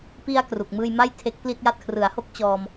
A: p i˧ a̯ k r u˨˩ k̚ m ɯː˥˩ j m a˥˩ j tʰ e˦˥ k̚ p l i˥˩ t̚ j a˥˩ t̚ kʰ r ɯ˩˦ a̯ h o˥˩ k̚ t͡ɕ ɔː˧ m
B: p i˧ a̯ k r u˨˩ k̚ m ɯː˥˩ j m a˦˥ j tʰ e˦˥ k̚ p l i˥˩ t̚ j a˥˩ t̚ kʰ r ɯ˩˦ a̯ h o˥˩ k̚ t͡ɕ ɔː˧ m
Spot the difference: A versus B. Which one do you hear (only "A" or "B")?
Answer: A